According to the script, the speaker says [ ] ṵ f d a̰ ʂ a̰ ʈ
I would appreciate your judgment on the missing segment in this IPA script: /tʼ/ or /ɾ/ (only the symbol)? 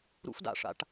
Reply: ɾ